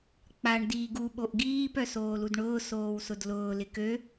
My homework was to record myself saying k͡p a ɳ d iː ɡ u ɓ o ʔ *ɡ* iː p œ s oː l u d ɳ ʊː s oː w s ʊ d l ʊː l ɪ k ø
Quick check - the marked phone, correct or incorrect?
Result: correct